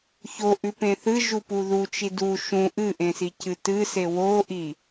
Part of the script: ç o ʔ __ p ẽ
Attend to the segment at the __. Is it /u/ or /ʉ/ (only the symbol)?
ʉ